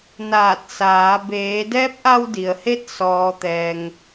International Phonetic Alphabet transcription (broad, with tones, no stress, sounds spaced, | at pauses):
n aː˧˩ t̚ s aː˩˧ b eː˩˧ d ɛː˧˥ p̚ ʔ a˧ w d i˩ ə̯ h e˧ t̚ s ɔː˩ t̪ ɛː˩ ŋ